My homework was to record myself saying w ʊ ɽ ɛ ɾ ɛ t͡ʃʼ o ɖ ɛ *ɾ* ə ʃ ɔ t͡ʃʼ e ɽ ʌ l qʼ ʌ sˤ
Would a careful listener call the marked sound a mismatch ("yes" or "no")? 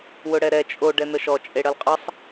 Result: yes